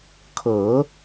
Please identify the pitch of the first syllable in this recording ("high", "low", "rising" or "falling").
rising